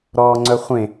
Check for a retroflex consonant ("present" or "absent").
absent